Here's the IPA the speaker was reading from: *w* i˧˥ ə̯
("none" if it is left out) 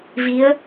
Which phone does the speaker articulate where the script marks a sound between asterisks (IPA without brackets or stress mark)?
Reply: v